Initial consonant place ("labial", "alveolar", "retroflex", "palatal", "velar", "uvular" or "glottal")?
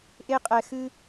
glottal